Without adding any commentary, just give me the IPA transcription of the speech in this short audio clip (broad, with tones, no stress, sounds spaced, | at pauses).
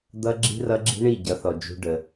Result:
d̪ ʌ˦ ɡ͡ǁ i̤˦ r ʌ˦ ɡ͡ǁ i̤˦ ɳ i˦˨ ɟ ʌ˨˦ θ ɔ˨ d͡ʒ ṳ˧ ɖ ə˨